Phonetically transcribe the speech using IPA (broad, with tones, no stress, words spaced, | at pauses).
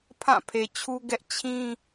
pʰã˦˨pʰe˨t͡ɕʰu˦ɡɛ˦ʔ t͡ɕʰĩ˦